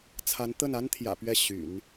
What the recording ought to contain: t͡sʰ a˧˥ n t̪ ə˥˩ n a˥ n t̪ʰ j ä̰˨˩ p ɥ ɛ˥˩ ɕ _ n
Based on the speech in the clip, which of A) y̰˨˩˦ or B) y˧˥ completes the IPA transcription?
A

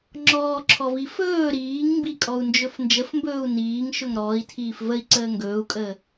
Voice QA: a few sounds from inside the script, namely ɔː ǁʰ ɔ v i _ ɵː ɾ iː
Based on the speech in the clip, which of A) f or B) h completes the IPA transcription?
A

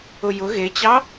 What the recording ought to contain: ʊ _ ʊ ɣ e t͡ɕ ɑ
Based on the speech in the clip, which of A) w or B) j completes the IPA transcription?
B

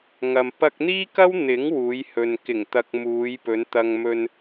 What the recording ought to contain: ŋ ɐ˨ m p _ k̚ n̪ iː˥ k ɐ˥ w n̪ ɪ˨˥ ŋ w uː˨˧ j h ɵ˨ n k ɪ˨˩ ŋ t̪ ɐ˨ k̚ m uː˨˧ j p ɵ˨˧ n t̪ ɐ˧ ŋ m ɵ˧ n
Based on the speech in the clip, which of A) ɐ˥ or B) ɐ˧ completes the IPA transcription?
B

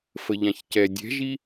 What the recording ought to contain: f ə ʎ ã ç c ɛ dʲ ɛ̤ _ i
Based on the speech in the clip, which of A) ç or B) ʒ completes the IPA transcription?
B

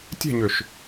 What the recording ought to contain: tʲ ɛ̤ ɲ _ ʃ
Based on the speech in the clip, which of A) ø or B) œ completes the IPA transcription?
A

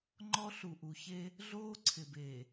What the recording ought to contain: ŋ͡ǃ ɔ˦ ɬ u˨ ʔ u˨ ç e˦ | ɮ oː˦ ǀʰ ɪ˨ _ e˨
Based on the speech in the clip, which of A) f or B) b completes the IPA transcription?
B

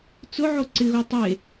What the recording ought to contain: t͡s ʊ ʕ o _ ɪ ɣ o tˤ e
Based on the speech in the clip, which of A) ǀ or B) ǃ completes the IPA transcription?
A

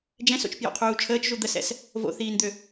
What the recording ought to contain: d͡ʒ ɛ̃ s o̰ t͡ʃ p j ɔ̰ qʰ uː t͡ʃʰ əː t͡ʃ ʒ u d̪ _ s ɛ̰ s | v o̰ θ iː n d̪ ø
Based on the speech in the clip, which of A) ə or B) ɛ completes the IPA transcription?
A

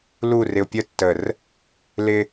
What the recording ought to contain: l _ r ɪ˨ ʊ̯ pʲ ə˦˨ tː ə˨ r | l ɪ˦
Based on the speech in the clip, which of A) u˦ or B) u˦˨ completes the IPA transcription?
B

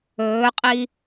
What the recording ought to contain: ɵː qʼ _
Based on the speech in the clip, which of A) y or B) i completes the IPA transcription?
B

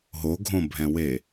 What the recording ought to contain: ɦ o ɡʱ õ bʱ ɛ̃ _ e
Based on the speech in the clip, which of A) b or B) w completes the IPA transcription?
B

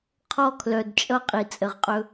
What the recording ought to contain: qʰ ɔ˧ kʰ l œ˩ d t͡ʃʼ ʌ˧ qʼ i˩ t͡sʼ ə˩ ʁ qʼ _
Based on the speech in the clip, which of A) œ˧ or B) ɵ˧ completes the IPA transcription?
B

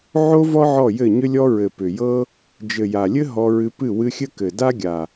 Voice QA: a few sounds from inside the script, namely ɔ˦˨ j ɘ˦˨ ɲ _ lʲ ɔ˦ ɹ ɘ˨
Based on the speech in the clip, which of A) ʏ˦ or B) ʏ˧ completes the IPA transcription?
A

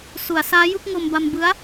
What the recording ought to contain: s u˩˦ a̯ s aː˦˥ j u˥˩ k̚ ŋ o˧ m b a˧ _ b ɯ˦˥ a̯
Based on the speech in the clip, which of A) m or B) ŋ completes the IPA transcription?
A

